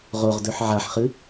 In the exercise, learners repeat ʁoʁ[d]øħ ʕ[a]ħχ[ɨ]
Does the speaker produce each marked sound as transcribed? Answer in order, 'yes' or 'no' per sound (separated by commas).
yes, yes, yes